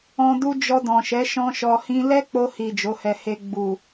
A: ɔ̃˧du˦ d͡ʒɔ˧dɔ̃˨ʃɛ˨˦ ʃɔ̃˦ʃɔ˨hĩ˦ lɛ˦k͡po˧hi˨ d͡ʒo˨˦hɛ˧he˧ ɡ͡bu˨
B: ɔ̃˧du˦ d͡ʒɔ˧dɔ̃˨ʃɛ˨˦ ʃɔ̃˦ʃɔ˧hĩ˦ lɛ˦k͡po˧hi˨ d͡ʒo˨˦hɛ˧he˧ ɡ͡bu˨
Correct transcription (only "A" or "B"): B